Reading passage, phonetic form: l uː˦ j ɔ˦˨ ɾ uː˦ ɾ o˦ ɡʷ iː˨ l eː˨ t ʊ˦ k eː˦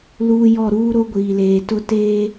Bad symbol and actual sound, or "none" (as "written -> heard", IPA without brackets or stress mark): k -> t